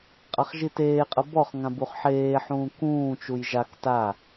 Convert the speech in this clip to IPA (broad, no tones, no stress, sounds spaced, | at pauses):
qʼ a χ ʒ i t eː qʼ ɤ b ɔ χ ŋ ã b u χ ħ eː ħ ũː k ũː t͡ʃ u j ʒ a k t a